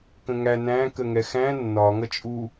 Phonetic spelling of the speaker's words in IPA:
kə̃ŋæ næ̃ kəŋɛxæ̃ nːɒ ŋʌt͡ʃʼu

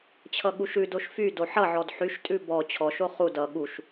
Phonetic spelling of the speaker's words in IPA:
t͡ɕʰʌɠuʃʉdoʃ fy doħʌʕɔd ħyʃtʼʉ bɔ t͡ɕʰɔʃo χu dʌ ɠuʃ

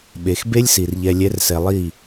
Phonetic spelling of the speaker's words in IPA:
ɓe˨xbe˦lʲsi˨r ʎɛ˨lʲɛ˨˦rsɛ˨ lˠi˦˨

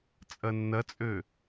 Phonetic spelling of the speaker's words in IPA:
t͡sʼɐnːɐt͡sʼø

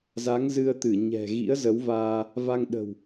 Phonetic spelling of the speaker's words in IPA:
za˨˦ŋzɨ˧ə̯t̪ɨ˧˩ ɲɛ̤˨˩ ɣḭ˧˥ə̯zə˨˦wvaː˧ | va˧ŋɗə̤˨˩w

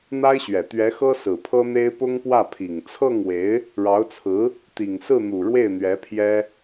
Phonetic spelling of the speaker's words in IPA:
n̪a˥ɪ̯ɕɥɛ˨˩ t̪ɥɛ˧˥xɤ˥ sɹ̩˨˩pʰɤ˥n̪e˥ɪ̯ pʊ˥ŋpwä˥˩ pʰi˨˩ŋ t͡sʰɤ˥˩ŋwe˧˥ɪ̯ | ɻɑ˧˥ʊ̯t͡sʰɹ̩˧˥ | t̪i˨˩ŋsɹ̩˥˩n̪u˨˩ ɻwe˥˩ɪ̯n̪ɥɛ˧˥pʰjɛ˥

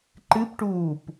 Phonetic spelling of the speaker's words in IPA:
ǃɨpʈuːp

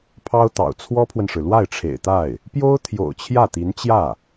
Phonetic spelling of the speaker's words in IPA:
pʰɑ˥ʊ̯t̪ɑ̰˨˩ʊ̯ t͡sʰwɔ˥pʰwə˨nʂɻ̩˩ lwa˥˩ɪ̯ʈ͡ʂʰḛ˨˩ɪ̯t̪a˥˩ɪ̯ | pjo˥ʊ̯ t̪ʰjo̰˨˩ʊ̯ t͡ɕʰjä˥˩t̪i˧˥n t͡ɕjä˥˩

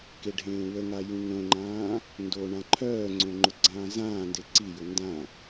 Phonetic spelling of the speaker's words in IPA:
keɖʱẽːwəŋa jũŋõŋ͡ǃãː | ndo ɳãǃʰœːŋ͡ǀõ ŋ͡ǃʊɡ͡ǀãːzãːnde ǀijʊ ndã

